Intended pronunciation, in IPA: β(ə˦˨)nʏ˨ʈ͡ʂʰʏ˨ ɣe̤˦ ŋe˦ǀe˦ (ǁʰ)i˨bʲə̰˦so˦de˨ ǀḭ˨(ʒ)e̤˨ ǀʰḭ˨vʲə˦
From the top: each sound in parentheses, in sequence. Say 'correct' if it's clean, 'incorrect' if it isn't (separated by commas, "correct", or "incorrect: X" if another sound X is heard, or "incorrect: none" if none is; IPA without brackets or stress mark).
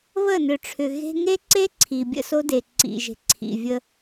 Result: correct, incorrect: ǀʰ, correct